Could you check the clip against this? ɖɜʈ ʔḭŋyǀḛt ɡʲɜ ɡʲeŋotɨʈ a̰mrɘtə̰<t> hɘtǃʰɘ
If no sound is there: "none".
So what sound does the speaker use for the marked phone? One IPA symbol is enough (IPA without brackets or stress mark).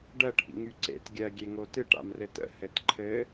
none